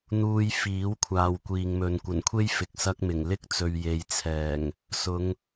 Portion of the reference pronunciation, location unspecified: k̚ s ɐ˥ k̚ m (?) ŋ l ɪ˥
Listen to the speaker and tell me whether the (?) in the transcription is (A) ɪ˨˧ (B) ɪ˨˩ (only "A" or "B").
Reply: B